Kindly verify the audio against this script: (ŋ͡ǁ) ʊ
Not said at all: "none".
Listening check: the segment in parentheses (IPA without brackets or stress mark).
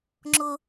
ŋ͡ǁ